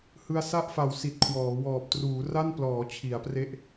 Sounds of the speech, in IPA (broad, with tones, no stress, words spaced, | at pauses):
hɯ˧a̯sa˥˩ʔfa˨˩w si˨˩t̚kʰwɔː˩˦wɔː˨˩p̚ truː˩˦ra˥˩nplɔː˩˦ t͡ɕʰi˩˦a̯pre˥˩ʔ